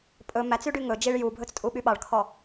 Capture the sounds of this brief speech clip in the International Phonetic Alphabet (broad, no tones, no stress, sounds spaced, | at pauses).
pʼ ɵ m æ t͡s y ɖ y ŋ ɵ d͡ʒ i ɭ j u bʱ ɵ t͡s tʼ u ɓ y ɓ ɑ ɭ kʰ ɔ